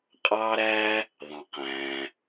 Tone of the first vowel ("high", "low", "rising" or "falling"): high